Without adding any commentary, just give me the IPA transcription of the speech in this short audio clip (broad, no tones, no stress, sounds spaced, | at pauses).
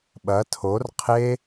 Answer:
ɓ ɐ tʰ o r qʰ e